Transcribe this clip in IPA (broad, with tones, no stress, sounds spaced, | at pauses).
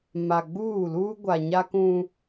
m a˨ ɡ͡b uː˦˨ l uː˦ ɡʷ a˨ ɲ a˦ k ũ˦